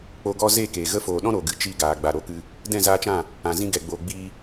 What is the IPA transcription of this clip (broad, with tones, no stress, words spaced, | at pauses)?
k͡po˧ɡɔ˦ ze˦˨keː˨ ɣə˧foː˨ɗɔ̃˦ ɾo˨ɡɨ˨ t͡ʃi˦˨ɡaː˨ ɡ͡ba˨ɾo˧kɨ˧ | dɛ̃˦˨zaː˧t͡ʃã˦˨ | ã˨zĩ˧ɡɛ˨ɡ͡boː˨ ɡ͡biː˧